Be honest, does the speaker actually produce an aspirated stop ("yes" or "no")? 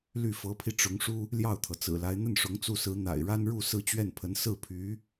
yes